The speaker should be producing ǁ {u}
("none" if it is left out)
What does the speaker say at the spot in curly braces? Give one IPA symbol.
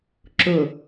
ʊ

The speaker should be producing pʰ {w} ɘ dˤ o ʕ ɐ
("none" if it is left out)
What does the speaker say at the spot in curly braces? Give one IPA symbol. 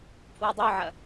w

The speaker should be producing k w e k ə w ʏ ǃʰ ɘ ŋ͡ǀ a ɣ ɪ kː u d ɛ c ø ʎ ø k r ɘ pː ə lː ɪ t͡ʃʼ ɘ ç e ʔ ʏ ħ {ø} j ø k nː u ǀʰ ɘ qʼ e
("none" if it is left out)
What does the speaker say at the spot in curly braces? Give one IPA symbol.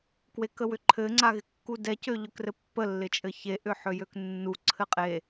ø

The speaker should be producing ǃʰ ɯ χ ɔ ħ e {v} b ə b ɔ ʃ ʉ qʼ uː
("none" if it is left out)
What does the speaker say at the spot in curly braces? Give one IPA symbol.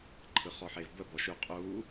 v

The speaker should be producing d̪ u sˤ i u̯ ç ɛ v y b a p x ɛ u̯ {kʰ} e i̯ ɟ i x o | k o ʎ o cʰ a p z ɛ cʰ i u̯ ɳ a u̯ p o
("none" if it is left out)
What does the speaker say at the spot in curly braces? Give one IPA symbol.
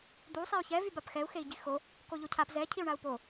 x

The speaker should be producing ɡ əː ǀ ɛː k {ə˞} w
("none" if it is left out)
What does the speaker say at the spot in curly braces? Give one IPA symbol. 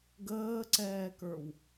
ə˞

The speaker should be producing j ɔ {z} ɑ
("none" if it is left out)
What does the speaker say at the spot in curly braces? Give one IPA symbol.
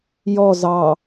z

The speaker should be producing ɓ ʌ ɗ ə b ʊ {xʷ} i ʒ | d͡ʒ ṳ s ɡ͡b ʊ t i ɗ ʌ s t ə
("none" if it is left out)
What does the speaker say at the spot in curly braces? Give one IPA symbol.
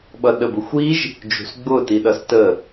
xʷ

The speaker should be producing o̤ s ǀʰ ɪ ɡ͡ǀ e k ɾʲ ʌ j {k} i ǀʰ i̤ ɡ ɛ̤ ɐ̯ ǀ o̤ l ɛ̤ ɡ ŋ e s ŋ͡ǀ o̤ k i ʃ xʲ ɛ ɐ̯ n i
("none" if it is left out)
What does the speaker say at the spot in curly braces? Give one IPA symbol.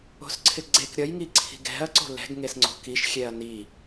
ŋ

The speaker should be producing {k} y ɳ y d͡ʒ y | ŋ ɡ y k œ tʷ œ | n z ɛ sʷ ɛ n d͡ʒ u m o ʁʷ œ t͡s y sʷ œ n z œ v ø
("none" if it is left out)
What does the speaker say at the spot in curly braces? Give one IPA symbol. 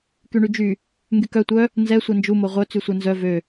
k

